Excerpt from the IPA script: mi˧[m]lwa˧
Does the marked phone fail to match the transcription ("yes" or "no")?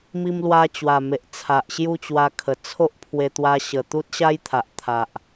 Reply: no